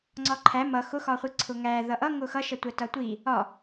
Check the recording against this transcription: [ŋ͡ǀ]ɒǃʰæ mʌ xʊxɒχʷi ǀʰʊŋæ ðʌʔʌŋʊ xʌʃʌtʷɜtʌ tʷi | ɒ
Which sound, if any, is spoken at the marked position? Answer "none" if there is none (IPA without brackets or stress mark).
ŋ͡ǀ